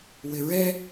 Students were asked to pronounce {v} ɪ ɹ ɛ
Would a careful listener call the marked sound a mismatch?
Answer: yes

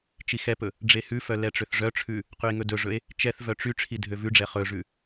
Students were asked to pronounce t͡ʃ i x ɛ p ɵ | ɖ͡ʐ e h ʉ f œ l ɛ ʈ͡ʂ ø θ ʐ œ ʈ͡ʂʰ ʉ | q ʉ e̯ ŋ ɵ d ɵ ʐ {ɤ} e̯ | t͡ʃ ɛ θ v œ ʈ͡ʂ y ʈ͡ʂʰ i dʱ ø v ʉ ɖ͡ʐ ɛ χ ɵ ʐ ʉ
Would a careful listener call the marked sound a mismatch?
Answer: yes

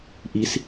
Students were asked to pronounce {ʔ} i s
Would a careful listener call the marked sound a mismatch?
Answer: no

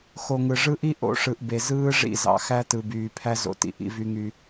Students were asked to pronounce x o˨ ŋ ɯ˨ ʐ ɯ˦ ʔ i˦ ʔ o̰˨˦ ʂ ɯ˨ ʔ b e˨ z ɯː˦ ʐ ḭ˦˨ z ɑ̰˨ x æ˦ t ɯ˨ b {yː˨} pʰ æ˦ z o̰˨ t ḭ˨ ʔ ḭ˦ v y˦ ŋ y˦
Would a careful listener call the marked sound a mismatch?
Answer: no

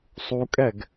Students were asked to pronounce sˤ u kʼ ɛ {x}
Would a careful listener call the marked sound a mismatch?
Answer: yes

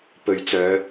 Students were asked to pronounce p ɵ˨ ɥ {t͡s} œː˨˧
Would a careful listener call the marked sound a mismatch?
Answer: no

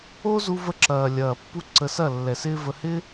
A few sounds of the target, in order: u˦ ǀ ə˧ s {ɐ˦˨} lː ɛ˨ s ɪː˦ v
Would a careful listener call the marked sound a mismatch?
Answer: no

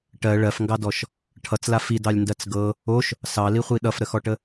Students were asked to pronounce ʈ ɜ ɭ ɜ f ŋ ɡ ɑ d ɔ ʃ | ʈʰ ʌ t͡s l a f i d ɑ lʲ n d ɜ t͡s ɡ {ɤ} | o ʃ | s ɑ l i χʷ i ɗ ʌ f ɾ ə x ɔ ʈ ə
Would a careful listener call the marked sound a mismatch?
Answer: no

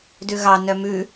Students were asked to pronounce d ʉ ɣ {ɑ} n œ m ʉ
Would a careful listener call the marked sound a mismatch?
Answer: no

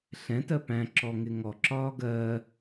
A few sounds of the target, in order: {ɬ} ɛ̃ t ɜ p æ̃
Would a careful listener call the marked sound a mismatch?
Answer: no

